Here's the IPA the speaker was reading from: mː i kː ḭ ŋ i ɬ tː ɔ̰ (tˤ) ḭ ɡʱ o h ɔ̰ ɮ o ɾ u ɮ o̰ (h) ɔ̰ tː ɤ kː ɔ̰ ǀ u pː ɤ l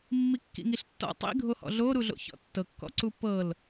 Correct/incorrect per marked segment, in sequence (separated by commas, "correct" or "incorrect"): correct, incorrect